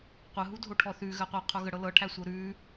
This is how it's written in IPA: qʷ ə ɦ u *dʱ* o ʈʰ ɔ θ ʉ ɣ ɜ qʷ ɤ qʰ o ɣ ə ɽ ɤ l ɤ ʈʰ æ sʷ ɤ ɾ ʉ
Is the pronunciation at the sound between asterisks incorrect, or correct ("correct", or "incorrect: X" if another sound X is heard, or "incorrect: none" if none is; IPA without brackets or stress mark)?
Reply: correct